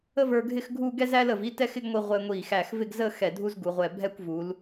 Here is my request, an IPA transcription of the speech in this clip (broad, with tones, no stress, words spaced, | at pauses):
ə˥və˞˧ɡʱɪ˥˧xɡʱu˥˧ ɡɛ˥zæ˥l ə˧˩vi˥˧tɛ˥˧x ɪ˥ɡŋʷi˧ ʁʷɛ˧ŋʷi˧˩ xæ˧˩xvɪ˥˧ɡzə˥˧ xɛ˧˩dʱu˥zɡu˩˧ʁʷɛ˧˩ bʱɛ˥˧kʷvu˩˧l